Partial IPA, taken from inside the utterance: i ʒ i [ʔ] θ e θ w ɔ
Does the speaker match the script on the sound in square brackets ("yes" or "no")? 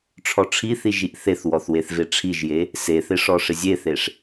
yes